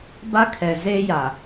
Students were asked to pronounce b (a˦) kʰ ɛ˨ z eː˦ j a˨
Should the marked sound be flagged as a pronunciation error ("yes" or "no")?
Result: no